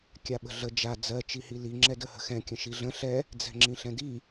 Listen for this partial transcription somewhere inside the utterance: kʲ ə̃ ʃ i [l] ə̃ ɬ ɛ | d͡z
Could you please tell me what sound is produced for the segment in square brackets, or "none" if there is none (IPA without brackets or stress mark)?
ɮ